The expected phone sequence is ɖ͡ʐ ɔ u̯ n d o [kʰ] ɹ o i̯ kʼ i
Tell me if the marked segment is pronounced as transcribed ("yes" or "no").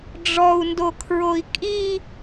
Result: yes